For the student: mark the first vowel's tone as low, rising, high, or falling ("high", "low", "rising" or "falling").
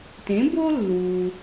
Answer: rising